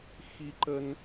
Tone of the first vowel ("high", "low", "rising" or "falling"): high